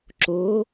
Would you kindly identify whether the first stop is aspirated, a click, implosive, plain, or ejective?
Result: click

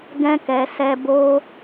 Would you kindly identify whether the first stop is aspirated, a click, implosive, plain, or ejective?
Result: plain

